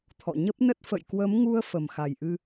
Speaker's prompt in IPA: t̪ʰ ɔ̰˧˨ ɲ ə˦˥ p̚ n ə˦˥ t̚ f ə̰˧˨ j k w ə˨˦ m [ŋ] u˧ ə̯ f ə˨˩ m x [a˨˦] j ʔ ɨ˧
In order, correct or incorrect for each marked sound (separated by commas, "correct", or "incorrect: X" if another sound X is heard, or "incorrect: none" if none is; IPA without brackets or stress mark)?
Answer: correct, incorrect: a˨˩